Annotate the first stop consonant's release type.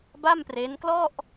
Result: plain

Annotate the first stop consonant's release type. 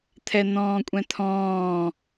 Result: aspirated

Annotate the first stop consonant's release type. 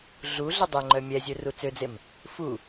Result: plain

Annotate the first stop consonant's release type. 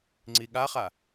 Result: click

